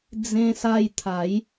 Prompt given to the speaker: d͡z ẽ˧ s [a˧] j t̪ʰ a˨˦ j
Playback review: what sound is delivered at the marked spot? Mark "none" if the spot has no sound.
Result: a˧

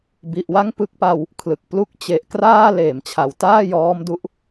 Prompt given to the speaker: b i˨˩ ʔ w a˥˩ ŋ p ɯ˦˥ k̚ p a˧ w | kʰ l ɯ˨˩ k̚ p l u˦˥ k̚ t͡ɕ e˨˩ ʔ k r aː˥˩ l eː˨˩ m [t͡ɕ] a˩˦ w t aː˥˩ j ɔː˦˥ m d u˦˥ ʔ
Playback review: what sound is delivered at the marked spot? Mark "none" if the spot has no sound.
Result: t͡ɕʰ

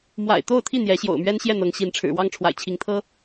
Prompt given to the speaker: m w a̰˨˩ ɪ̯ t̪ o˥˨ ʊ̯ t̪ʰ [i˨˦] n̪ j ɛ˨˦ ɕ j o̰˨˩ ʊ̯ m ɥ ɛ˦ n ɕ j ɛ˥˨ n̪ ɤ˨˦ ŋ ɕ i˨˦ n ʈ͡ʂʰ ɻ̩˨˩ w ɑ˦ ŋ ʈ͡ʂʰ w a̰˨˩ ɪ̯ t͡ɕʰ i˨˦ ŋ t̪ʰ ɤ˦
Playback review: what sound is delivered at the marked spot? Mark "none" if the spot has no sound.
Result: i˥˨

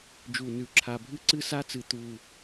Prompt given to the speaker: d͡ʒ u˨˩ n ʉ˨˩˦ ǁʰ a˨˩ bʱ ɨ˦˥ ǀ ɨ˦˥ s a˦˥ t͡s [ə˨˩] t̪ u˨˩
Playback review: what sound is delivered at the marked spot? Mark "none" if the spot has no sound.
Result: ɨ˨˩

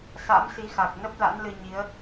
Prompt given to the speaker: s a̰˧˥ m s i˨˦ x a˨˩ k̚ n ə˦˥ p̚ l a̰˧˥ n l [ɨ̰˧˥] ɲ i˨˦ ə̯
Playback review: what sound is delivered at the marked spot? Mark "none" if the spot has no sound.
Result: ɨ˧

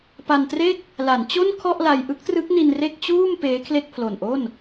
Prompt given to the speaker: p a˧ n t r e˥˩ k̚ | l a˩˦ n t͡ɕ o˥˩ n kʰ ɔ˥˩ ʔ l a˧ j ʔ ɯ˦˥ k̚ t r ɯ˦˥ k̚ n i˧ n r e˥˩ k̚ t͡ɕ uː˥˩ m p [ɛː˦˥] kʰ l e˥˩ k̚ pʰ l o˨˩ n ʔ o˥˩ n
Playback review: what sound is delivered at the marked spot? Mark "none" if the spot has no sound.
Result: eː˦˥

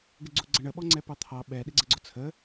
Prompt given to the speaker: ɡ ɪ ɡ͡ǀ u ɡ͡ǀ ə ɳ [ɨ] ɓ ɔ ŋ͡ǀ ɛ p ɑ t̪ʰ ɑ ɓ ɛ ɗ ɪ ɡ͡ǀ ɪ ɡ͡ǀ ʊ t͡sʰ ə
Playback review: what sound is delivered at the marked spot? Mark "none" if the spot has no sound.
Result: ə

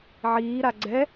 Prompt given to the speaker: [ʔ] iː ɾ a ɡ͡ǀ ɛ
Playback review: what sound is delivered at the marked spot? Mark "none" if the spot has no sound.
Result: ʕ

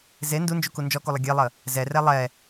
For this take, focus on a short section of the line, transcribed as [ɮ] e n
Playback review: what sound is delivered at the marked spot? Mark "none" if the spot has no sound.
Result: z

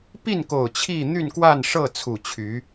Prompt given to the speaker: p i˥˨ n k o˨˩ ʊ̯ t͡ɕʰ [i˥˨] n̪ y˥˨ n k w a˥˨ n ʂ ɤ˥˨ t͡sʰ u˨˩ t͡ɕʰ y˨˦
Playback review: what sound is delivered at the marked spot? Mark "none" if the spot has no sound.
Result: i˥˨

